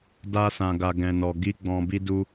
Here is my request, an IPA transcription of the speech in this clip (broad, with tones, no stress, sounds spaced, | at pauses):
d a˧ s ã˨ ɡ a˨ ɡ ɛ̃˨ n ɔ˨ ɡ i˧ ɡ͡b ɔ̃˨ b i˧ d u˧